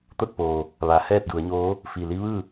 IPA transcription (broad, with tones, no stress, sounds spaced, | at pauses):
t̪ o˥˨ t̚ p oː˩ | ʋ a˩˧ h ɛː˥˨ t̚ d u˩˧ ə̯ ɲ oː˧˥ | f i˧˩ l i˧˥ ʋ ɯː˥˨